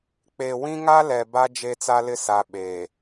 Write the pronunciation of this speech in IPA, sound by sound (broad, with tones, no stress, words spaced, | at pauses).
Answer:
k͡pe˨wĩ˦ŋa˦ lɛ˨ba˦ d͡ʒe˦t͡sa˦lɪ˦sa˨ ɓeː˨